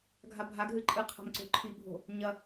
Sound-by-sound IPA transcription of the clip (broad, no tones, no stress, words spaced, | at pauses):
ɡʱabʱaɡɦɨ ǃʼɨqʰa̤m ǀo̤ǃʰibʱo̤ | ɲɐ